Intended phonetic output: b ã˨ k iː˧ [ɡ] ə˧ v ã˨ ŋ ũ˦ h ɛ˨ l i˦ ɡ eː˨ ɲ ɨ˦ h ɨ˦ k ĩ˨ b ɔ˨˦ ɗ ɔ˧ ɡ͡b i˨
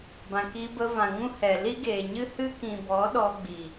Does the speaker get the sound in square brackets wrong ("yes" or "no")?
yes